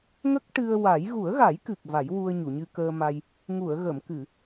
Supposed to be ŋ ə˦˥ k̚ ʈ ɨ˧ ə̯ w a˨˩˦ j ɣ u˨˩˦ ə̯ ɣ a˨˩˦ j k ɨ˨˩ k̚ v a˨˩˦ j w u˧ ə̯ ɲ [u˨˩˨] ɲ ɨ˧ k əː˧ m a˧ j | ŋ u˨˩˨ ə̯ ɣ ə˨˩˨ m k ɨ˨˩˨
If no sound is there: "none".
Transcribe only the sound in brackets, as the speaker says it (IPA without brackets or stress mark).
u˨˩˨